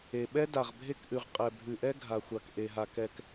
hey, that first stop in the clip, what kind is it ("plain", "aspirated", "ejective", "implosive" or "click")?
implosive